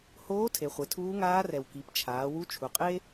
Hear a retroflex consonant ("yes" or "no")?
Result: no